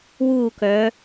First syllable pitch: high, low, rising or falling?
falling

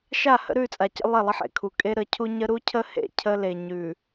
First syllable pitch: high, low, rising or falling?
falling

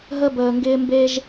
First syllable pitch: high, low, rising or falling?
high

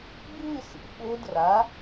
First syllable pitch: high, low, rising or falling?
falling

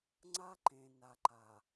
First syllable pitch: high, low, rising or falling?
high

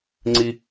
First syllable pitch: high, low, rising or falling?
high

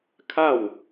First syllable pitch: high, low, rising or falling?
falling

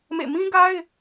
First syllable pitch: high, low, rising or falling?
falling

